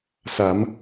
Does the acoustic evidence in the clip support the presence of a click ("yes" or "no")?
no